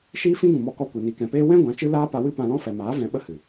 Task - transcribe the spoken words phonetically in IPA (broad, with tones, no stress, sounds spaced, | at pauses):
ʃ iː˦ f ĩ˦ ɡ ũ˨ m ɔ˧ k ɔ˧ kʷ i˨ n i˨ k ɛ̃˨ p eː˦ w ɛ̃˦ ɡʷ ã˨˦ t͡ʃ ɨ˦ l aː˦ p a˧ w ɨ˦ p ã˧ l ɔ̃˦ f ɛ˨ m aː˨˦ v ɛ̃˧ ɓ ə˦ h ɨ˨